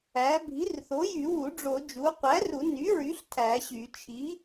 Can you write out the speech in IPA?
æ˩˥ bʱi˩˥rθo˩˥jy˨˩˦wu˨˩˦ ɖ͡ʐo˨˩˦d͡ʒu˩˥ qʷæ˩˥ru˨˩˦ ny˩˥ɹy˩˥ɬ tʰæ˨˩˦ɕy˨˩˦ t͡ʃʰi˩˥

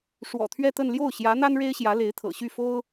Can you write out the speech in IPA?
ʂwɔ̰˨˩t̪ʰɥɛ˥˧t̪ə˥˧n ljo˥˩ʊ̯ɕjä˧˥n̪a˥n ɻe˥ɪ̯ɕjä˧˥ le˧˥ɪ̯t̪ʰɤ̰˨˩ɕy˥˩fo˥ʊ̯

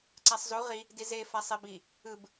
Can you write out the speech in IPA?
ǀasˤzu ʁi | dize fasˤebi | ɯb

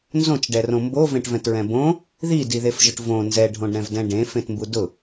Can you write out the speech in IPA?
nzõt͡ʃɖɛrõ mbovẽʈvɛ̃tɹɛ̃ bõ | ðidiðefʒʊʈ võ nzɛɖʱõɖɾɛ̃vdɛ̃ ɖẽfẽtmbu dʊ

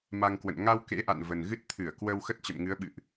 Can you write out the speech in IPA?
ma˧ŋkwə̰˧˨n ŋa˧w kḛ˧˥ʔa̰˧˨n və˨˩nɣɨ˦˥t̚ t̪ʰɨ˧˩ə̯ kwə˧w xə˦˥t̚t͡ɕə̰˧˨mŋɨ˨˦ə̯ɓɨ̰˧˨ʔ

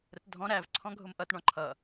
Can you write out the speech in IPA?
ɾətdʱɔ̃ ɾæv ǀʰɔ̃ɡʱʊmʔʌt ɳɔ̃ǃʰʌ

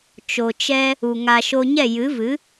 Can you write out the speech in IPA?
t͡ʃo˨t͡ʃɛ˧ | u˨ ŋa˨ ʃo˧ɲɛ˦˨jɨ˨˦ vɨ˨˦

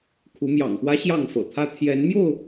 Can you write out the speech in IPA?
kʰu˨˦mjɑ̰˨˩ŋpwä˦ ɕjɑ˥˨ŋfɤ̰˨˩t̪ʰä˦ t̪ʰjɛ˨˦n mjo˥˨ʊ̯

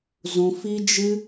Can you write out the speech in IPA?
zũ˧fi˦d͡ʒɨ˦

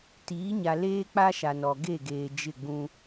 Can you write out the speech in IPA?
tiː˨˦ɲa˨leː˦ k͡pa˦ʃa˨nɔ˨ ɡe˦˨ɡeː˨d͡ʒɪ˦˨ɡ͡bũ˦

